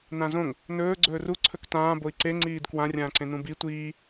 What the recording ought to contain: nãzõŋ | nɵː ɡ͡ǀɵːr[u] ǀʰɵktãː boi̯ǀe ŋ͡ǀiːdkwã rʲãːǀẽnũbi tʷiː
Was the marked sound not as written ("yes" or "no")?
no